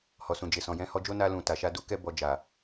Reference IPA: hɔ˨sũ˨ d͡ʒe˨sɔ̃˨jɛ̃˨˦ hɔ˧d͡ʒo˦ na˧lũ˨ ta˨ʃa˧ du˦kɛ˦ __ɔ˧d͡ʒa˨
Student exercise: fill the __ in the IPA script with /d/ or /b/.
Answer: b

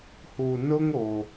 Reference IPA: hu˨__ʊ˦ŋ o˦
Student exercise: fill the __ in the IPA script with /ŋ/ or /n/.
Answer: n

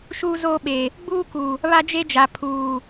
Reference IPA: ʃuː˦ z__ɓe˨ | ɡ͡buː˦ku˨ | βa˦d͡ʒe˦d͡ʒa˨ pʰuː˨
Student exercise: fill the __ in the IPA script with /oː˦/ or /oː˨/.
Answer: oː˦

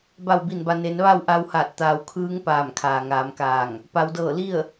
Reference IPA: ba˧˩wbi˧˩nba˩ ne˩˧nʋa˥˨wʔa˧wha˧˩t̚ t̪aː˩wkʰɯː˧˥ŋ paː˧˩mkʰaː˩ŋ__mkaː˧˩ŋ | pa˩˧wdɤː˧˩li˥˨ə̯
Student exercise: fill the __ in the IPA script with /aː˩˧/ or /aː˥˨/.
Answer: aː˩˧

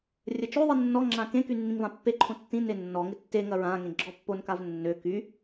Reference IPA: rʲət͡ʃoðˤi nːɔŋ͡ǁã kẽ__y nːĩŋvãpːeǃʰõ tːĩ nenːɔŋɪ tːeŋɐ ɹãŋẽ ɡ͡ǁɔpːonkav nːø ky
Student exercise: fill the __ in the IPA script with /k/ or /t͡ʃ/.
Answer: k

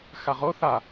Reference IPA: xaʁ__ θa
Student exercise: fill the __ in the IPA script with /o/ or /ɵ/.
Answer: o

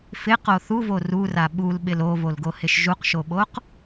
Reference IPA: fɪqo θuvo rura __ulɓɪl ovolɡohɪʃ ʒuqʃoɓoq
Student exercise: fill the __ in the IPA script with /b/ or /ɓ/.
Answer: ɓ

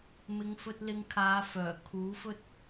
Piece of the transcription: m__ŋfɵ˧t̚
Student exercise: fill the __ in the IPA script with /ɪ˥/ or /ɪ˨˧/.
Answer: ɪ˨˧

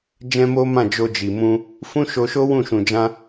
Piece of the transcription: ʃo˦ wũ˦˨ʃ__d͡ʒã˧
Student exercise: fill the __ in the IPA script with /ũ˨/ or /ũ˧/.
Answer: ũ˨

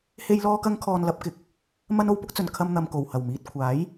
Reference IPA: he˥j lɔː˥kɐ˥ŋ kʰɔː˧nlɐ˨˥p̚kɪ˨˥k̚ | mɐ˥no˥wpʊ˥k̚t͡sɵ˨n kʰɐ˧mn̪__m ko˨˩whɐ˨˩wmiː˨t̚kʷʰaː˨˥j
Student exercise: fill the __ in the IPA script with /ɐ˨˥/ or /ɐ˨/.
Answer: ɐ˨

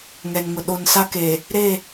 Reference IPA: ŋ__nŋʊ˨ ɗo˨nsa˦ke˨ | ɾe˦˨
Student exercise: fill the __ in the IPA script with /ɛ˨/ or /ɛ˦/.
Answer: ɛ˨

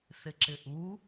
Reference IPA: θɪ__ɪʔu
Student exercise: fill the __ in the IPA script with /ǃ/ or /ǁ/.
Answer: ǁ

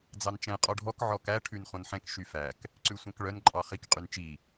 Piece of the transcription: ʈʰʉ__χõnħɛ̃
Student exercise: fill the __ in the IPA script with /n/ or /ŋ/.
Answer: n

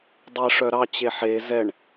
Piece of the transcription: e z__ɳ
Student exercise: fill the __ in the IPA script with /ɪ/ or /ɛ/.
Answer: ɛ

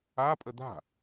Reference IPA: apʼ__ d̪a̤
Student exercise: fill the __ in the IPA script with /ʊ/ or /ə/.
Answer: ə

